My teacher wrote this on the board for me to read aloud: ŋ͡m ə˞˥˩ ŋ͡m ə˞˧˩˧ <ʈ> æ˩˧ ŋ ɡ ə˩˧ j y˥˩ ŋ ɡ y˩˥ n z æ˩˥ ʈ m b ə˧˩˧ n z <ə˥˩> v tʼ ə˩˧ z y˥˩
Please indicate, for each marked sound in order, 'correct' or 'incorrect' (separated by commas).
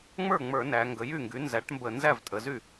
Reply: incorrect, incorrect